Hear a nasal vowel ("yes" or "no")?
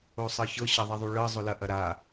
no